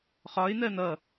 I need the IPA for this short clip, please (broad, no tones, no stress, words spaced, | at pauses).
χɒɪ̯ n̪ɜn̪ʌ